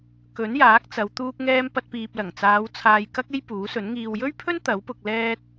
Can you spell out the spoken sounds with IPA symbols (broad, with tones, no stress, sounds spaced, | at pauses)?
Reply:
k ɵ˨˥ n j aː˨˥ k̚ t͡s ɐ˨˧ w t̪ uː˥ k̚ ŋ ɛː˥ m p ɐ˧ t̚ p iː˨ p̚ l ɐ˨˩ ŋ t͡s aː˨˧ w t͡sʰ aː˧ j k ɐ˥ k̚ e˥ j p uː˨˥ s ɵ˨˥ n ŋ iː˨ w j ɵ˥ ɥ pʰ ɵ˥ n t̪ ɐ˨˥ w p ʊ˧ k̚ l ɛː˥ t̚